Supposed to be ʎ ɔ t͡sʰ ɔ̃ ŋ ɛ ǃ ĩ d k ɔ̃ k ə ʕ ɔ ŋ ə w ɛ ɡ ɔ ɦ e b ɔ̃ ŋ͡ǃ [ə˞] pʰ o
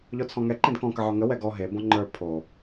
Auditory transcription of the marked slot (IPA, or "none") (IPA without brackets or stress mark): ə˞